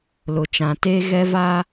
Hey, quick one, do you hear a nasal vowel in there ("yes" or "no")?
yes